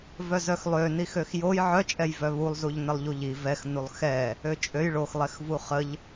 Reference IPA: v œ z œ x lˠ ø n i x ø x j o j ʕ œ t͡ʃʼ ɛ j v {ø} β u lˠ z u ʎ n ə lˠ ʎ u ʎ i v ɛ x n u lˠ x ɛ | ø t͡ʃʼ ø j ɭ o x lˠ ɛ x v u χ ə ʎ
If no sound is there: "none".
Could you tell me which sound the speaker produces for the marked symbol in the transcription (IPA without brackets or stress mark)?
œ